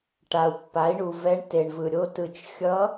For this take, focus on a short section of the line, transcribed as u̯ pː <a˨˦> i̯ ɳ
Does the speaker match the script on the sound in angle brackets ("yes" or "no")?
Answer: yes